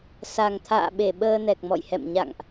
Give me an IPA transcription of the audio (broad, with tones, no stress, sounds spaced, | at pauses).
s a˨˩ ŋ t̪ʰ a̰ː˧˨ ɓ e˧˩ ɓ əː˧ n ɛ˨˩ k̚ m ɔ̰˧˨ j h ɛ̰˧˨ m ɲ a̰˧˨ ŋ ʔ